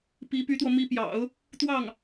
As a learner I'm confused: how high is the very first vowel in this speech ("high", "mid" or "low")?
high